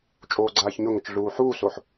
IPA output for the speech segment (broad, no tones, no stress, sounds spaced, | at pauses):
t͡ʃʼ oː ɡ͡ǀ aː ç ɲ ʊ ŋ ə t͡ʃ ɮ uː ħ uː s o ħ